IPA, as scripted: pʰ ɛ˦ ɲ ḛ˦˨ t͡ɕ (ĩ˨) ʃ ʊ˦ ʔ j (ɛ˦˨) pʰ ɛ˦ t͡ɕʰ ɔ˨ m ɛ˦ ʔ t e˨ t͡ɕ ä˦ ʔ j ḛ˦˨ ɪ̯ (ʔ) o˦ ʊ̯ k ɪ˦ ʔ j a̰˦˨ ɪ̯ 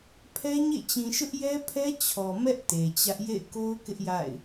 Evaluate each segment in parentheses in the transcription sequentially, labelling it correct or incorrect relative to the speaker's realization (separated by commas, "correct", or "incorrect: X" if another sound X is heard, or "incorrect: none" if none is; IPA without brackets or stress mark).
correct, incorrect: ɛ˦, incorrect: k